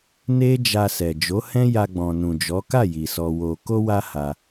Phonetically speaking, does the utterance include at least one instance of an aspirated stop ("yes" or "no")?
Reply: no